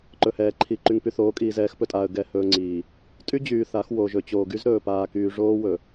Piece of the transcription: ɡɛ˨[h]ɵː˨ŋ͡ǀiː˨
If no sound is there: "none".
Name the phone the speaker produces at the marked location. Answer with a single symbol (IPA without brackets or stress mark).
h